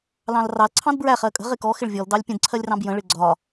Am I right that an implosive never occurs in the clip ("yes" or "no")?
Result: yes